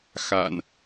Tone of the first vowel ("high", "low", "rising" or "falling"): low